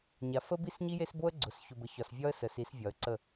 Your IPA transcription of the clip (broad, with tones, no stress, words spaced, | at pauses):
ɲa˨fə˦ bi˦s ɲi˦je˦sbo˦ə̯ ɡ͡ǀʊ˨s çʊ˨bə˨ çɒ˨svʲɒ˦ə̯ sə˨si˨˦svʲɒ˨ə̯ǀə˦˨